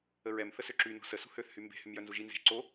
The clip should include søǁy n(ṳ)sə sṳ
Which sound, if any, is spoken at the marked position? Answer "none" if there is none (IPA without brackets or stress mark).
o̤